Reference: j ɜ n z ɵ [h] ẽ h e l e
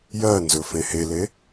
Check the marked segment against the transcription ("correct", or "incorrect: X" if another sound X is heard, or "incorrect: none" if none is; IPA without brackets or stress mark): incorrect: f